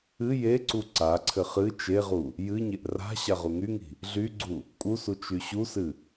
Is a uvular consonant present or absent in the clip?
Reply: present